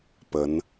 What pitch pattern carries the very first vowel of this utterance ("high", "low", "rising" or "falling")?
rising